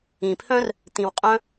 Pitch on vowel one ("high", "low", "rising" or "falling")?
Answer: low